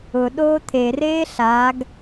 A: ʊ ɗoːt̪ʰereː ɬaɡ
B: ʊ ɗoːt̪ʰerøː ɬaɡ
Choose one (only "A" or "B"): A